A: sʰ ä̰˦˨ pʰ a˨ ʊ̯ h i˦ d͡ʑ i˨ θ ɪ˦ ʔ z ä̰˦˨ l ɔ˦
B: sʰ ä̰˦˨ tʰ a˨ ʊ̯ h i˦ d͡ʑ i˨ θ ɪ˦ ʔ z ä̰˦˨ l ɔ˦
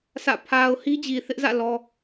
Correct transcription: A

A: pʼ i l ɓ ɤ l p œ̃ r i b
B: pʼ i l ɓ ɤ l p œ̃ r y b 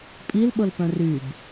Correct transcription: B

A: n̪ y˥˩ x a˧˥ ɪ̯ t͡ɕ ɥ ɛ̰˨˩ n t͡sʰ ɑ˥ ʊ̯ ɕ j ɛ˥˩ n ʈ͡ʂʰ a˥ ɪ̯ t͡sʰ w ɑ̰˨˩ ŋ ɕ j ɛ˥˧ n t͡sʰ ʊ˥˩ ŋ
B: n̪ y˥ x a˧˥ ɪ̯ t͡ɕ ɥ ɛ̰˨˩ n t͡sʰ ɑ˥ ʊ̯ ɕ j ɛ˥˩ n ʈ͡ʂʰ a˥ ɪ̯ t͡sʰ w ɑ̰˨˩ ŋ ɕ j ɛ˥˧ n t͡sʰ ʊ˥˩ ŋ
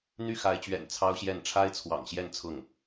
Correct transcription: A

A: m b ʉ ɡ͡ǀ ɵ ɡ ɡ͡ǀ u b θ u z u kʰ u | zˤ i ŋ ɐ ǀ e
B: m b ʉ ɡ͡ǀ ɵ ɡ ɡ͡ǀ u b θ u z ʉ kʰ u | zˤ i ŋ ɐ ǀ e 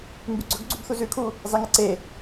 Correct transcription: B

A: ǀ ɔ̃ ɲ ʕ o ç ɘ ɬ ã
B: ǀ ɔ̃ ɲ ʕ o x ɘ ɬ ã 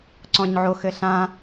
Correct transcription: B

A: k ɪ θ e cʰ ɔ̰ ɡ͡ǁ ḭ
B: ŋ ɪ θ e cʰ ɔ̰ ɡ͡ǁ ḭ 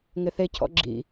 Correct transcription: B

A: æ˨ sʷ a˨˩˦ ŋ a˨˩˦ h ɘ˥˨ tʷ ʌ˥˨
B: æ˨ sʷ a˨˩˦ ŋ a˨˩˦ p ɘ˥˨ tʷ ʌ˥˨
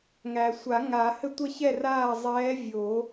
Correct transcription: A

